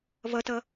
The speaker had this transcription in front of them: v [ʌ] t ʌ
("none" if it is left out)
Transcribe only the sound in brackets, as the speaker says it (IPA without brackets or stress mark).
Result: ʌ